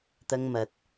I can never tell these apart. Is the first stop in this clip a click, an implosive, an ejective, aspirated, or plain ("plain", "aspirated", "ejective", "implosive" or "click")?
plain